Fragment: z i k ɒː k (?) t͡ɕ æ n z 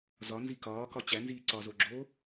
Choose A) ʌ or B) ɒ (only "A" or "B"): B